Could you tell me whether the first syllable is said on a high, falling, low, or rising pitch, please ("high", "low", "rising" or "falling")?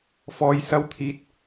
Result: low